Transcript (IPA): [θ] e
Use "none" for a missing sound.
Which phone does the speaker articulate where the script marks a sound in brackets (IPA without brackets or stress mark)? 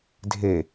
dʱ